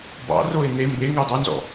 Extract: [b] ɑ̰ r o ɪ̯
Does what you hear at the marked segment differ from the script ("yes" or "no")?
no